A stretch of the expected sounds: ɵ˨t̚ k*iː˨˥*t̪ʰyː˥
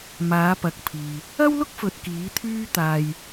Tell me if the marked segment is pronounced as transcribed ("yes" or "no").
yes